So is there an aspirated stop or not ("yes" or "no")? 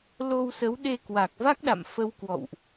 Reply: no